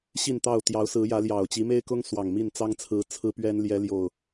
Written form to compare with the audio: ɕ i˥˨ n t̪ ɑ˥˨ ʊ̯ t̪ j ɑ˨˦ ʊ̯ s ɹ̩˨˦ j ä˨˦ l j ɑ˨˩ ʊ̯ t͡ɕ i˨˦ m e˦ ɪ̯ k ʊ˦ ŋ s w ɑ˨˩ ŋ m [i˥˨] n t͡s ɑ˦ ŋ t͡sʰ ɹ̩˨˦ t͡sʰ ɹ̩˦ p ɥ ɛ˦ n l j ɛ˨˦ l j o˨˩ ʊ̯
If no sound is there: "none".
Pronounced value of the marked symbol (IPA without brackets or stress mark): i˥˨